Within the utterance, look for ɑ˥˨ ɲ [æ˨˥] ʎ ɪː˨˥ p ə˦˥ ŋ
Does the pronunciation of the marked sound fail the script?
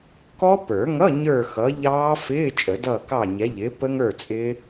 yes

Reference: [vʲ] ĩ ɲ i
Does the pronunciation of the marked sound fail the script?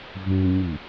yes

